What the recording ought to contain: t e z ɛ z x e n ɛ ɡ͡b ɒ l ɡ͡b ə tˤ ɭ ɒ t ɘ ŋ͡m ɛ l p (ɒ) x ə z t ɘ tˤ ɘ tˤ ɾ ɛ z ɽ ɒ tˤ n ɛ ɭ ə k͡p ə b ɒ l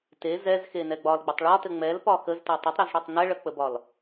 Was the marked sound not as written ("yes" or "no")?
no